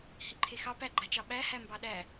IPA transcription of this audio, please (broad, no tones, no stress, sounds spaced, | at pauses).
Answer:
h i ǃʰ e x ɑ p æ ɡ͡ǃ a t͡ʃ ɑ ɓ æ h æ m b ɑ ɗ æ